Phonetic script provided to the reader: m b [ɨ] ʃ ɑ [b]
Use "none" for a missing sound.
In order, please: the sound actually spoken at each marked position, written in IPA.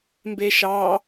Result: e, none

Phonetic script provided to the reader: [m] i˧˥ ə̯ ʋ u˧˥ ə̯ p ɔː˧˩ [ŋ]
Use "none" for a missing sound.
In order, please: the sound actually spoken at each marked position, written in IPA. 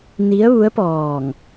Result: n, ŋ

